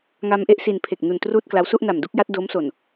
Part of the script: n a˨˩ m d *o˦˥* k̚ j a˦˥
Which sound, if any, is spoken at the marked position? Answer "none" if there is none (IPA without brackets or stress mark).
u˦˥